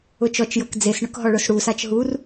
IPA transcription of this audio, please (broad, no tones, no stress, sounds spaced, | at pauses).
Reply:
ʊ t͡ʃ ɔ t͡ʃ j ɤ k d͡z e s ɳ ʊ k ɦ ɔ ɭ ʊ s ɽ u s a t͡ʃ ɦ u r